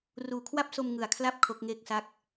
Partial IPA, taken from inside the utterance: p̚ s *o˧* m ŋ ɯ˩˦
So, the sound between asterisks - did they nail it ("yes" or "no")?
yes